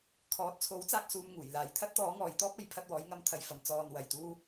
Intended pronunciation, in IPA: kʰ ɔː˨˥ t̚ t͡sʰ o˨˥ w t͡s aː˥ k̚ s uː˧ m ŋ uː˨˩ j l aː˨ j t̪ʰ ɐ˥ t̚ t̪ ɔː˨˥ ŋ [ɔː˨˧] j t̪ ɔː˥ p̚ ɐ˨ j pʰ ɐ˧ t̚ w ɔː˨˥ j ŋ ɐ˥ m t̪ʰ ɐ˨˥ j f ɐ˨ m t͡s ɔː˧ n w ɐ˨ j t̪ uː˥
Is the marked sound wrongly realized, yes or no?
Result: no